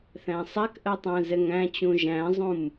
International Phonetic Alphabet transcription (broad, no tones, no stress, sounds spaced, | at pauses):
θ æ̃ sˤ æ k ʔ ɜ tˤ æ̃ z ɛ ŋ æ̃ t͡ɕ ũ ʒ æ̃ zˤ ũ m